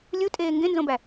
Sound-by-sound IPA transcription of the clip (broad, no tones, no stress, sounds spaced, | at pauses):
lʲ u tʼ eː ŋ ɡ ẽ n z õ b æ